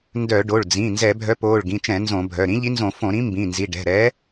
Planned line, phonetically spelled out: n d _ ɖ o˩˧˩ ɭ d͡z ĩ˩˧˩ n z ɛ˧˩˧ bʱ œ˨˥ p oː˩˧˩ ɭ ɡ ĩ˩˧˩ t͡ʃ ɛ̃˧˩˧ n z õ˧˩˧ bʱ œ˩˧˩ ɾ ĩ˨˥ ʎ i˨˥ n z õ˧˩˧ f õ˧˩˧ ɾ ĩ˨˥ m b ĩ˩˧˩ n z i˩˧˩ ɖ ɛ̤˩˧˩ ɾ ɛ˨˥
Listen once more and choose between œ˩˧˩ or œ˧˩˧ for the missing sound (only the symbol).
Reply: œ˧˩˧